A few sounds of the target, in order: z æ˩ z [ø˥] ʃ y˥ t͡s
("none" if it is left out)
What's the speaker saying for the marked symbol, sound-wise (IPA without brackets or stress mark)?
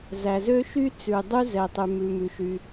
ø˥